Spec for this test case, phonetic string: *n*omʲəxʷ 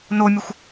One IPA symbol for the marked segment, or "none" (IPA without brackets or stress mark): n